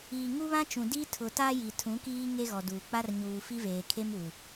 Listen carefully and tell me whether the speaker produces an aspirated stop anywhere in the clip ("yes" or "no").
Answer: yes